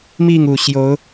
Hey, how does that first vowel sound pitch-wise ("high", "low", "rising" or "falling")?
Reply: falling